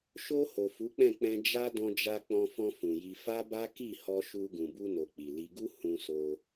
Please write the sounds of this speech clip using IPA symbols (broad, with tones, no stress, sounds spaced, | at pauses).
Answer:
ʃ o˧ h o˨ f u˨˦ k͡p ɛ̃˦˨ k͡p ɛ̃˧ d͡ʒ a˦ d ɔ̃˧ d͡ʒ a˧ k͡p ɔ̃˧ f ɔ̃˧ f ũ˨ j i˧ f a˦ b a˦ k i˦˨ h ɔ˧ ʃ u˧ ɡ ũ˨ b u˧ n o˨ k͡p i˨ l i˧ ɡ u˦ h ũ˧ s o˧